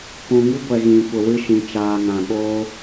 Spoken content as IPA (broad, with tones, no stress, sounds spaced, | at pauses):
p ũ˨ ŋ i˦ ɡʷ ɛ˨ ɣ ĩ˨ kʷ ə˨ w ɨ˧ ʃ ĩ˨ t͡ʃ aː˨ ŋ ã˨ ɓ oː˦